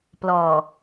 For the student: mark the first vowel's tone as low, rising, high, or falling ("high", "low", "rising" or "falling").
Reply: low